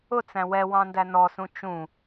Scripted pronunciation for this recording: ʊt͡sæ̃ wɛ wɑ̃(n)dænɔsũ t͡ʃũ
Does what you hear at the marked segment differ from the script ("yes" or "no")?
no